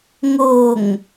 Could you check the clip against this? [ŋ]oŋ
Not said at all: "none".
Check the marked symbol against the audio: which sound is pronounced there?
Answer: ŋ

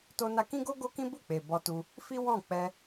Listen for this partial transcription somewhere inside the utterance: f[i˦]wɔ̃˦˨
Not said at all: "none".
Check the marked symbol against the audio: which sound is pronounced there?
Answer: i˦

